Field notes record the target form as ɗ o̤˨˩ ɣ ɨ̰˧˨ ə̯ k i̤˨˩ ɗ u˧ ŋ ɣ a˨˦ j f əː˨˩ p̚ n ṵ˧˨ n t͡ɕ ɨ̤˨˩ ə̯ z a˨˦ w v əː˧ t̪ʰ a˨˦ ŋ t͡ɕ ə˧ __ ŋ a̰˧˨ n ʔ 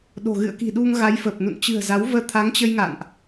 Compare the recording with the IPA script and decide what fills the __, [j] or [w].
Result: j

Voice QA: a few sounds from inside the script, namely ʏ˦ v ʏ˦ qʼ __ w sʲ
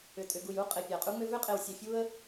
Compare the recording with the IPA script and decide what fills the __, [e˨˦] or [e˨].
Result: e˨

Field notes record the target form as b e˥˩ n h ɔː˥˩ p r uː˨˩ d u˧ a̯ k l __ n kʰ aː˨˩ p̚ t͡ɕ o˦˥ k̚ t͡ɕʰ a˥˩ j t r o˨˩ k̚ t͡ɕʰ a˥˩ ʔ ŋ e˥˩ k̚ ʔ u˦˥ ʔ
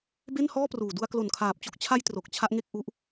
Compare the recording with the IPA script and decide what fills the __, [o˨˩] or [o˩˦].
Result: o˨˩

